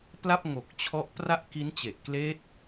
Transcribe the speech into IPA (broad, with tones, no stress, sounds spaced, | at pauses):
p l a˥˩ p̚ ŋ o˨˩ k̚ t͡ɕʰ ɔ˦˥ ʔ p r a˥˩ ʔ k i˦˥ n t͡ɕ e˨˩ ʔ k l eː˦˥ t̚